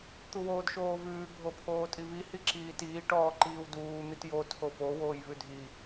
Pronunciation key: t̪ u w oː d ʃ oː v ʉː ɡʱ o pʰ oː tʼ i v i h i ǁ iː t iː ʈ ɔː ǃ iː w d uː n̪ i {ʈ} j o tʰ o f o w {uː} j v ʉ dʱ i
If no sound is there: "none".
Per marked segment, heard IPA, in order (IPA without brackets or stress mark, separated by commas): t, oː